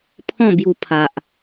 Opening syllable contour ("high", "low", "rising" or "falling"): falling